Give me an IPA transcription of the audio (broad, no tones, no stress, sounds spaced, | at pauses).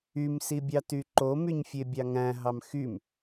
y m s i bʲ ɑ t y ǃ o m y ɲ fʲ e bʲ ɑ ŋ æ̃ ɦ ɑ m x y m